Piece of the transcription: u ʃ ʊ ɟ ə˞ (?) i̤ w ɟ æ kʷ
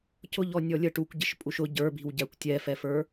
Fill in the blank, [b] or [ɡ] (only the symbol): b